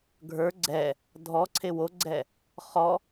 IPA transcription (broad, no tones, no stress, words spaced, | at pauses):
ɡʱə˞ ɡ͡ǀɛ | dʱɔǀʰe woɡ͡ǀɛ | χɔ